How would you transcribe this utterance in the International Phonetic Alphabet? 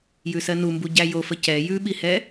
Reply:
j ʉ s ɜ n u m b u ɟ æ j o f ə c ɛ j ʉ ɓ i h ɛ

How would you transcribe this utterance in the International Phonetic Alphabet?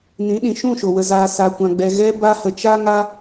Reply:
n ĩ˨˦ ɗ ĩ˨ ʃ ũ˦˨ ʃ o˨ w ə˧ z aː˧ s a˧ kʷ ã˧ ɡ͡b ɛ˧ ɣ ɛ˧ b a˦ h ə˧ t͡ʃ a˦ ŋ a˦

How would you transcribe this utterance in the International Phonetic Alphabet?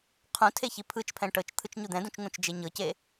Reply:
qʰ ũ tʰ e ç i pʰ ɯ t͡ʃ pʰ ɛ̃ ʈ ɤ t͡ʃ t̪ʰ ɯ t͡ʃ ɲ u d̪ ɛ̃ d ũ t͡ʃ ŋ ũ t͡ʃ d͡ʒ e ɲ ɤ c e

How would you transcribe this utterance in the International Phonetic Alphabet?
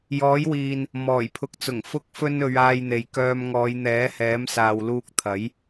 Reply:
j ɔː˨˥ j w iː˨ n | m ɔː˨˩ j pʰ ʊ˨˥ k̚ t͡s ʊ˨˩ ŋ f ʊ˧ k̚ f ɵ˧ n ɵ˨˧ ɥ aː˧ j n̪ e˨ j k œː˧ m ŋ ɔː˨˧ j n̪ ɛː˨˥ h ɛː˨˥ m s aː˨ w l uː˧ k̚ t̪ʰ ɐ˨˥ j

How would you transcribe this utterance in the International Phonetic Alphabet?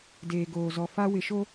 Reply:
d eː˨ ɡ oː˨ z ɔ˨ f a˦ w ɪ˨ ʃ o˦

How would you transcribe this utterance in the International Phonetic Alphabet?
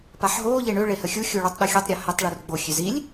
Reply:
p a ħ ɦ o ʎ e ɳ ø ɭ e h ə xʲ u xʲ u ɭ u tˤ ɗ o xʲ u tˤ ɾʲ a h ʏ tˤ ɭ u r ɡ͡b o xʲ ø z i lʲ

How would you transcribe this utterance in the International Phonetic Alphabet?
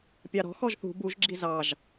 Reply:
pʲ ɑ ɾ ɔ̤ x ɔ ʒ θ ṳ b u ʒ ɡ͡ǁ i z ɑ ʒ

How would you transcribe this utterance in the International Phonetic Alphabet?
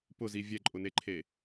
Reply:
p ʊ z i vʲ ɛ ǃʼ ʊ n e ǃʰ e

